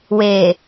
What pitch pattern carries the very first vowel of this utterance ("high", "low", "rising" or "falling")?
low